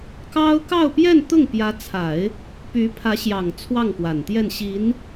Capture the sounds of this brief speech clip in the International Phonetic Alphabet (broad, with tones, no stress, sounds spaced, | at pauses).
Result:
k ɑ˥ ʊ̯ k ɑ˥˧ ʊ̯ p j ɛ˥˧ n t̪ ʊ˥˩ ŋ p j ä˧˥ t͡sʰ a˨˩˦ ɪ̯ | p y˧˥ pʰ ä˧˥ ɕ j ɑ˨˩ ŋ t͡sʰ w ɑ˥˩ ŋ p w a˨˩ n t̪ j ɛ˥˩ n ɕ i˧˥ n